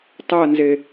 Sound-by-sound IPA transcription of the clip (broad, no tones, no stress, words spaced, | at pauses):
tˤɜnze